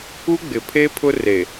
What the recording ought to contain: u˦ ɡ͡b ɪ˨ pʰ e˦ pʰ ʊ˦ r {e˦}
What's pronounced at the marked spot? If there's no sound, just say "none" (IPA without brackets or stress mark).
e˨